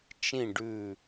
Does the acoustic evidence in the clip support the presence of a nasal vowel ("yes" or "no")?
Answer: yes